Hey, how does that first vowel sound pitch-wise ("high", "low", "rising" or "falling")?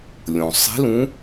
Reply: low